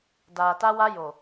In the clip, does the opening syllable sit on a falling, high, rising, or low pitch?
low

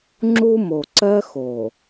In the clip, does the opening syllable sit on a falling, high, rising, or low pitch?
high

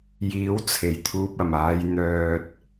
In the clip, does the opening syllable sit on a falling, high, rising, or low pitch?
rising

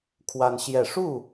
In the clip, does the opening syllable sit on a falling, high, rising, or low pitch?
high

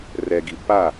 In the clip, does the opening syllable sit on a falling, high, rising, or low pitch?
low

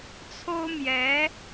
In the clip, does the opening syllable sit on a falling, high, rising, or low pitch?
high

